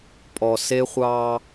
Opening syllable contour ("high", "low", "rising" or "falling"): low